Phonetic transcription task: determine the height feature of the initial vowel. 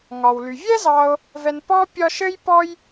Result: low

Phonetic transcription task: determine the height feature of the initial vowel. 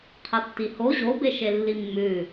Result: low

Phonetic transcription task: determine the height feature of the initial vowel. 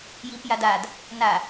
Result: high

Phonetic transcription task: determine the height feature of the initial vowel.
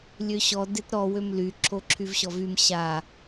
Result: mid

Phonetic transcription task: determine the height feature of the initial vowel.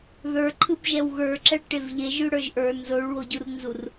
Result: mid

